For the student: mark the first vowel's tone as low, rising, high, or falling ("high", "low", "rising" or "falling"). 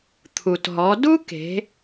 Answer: low